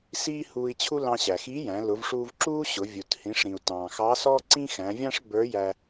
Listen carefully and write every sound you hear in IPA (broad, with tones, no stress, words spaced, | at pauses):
siː˥huː˧i̯t͡ɕʰu˥ lɑ̃˧ɕæ˩xiː˧˥jæ̃˩˧ lʊ˩˧vʂuː˧vǁuː˥ ɕʊ˩˧ vʲu˩thĩ˩˧ʂɾĩ˩u̯ tɑ̃ː˩xɑ˧˥sɔ˥ǀĩ˥ xæ̃˩˧vʲɑ̃˥ʂbə˞˧˥jæ˧